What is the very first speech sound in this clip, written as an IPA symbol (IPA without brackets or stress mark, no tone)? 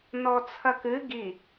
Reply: n